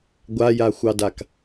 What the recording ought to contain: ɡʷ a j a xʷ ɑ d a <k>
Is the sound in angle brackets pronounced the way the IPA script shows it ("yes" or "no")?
yes